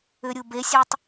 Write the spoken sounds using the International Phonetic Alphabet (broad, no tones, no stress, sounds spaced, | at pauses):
ʏ ɾʲ u b e sʲ e tˤ